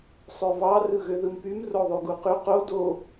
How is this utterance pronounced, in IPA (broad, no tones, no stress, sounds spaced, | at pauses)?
sˤ ø v ɑ r ɯ ɣ ø ð ɯ m p y m r o ðˤ y ɡ u q y q o d o